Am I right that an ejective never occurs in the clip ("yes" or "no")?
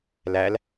yes